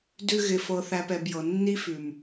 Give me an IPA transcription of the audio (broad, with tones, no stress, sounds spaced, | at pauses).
d ʉ˦ ɣ ɪ˧ f ɤ˧ θ æ˧ p ɛ˨ b j ɤ˨ nː i˦ f ʉ˨ m